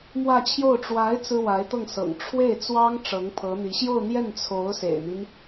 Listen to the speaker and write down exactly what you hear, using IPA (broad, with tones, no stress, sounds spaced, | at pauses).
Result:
m w ä˥˧ t͡ɕʰ j o˥˩ ʊ̯ ʈ͡ʂ w a˧˥ ɪ̯ t͡s ɹ̩˥ w a˧˥ ɪ̯ t̪ ɤ˥˩ ŋ s ɤ̰˨˩ ŋ ʈ͡ʂʰ w e˥˩ ɪ̯ t͡s w ɑ˥ ŋ ʈ͡ʂ ɤ˧˥ ŋ pʰ ɤ˧˥ n̪ i˧˥ ɕ j o˥˧ ʊ̯ n̪ j ɛ˥˩ n t͡sʰ o˧˥ ʊ̯ s ḛ˨˩ ɪ̯ n̪ i˦ n